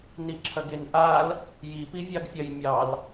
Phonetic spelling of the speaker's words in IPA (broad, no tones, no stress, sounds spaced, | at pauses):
n i ǁʰ ɐ ɡ e n ʔ a l | j i p i vʲ ɑ ɡ fʲ ɐ j mʲ ɑ l